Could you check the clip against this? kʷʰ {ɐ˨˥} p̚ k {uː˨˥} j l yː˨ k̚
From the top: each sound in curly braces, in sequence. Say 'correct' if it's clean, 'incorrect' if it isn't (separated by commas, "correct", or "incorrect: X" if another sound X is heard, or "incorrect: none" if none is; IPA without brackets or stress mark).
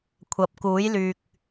correct, correct